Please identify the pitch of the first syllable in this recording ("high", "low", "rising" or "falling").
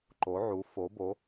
rising